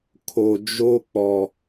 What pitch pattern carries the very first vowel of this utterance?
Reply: low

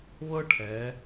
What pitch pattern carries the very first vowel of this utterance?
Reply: high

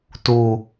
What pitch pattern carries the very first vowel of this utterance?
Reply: low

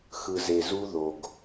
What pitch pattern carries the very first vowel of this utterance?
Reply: low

